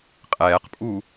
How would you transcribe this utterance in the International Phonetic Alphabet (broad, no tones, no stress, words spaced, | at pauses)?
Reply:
qʼɛːqpʼu